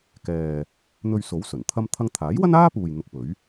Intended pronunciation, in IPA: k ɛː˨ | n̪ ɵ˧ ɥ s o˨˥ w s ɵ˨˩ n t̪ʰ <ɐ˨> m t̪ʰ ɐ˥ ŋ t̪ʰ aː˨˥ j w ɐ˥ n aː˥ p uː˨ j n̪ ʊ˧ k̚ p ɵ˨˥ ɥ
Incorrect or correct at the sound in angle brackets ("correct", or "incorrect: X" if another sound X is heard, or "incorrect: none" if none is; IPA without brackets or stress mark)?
incorrect: ɐ˥